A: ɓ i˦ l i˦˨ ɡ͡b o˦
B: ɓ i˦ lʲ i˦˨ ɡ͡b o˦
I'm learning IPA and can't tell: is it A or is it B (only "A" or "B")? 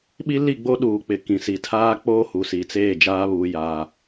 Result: A